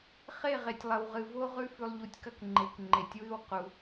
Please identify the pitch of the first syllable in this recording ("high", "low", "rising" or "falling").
falling